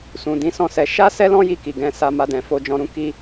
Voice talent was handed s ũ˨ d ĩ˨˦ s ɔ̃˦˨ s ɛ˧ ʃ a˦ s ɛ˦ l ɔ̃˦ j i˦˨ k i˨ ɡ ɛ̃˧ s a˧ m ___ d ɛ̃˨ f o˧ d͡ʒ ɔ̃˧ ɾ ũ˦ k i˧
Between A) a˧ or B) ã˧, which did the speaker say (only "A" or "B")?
A